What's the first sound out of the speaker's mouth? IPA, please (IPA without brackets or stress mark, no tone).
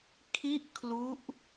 kʰ